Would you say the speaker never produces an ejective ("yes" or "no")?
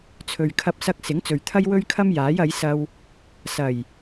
yes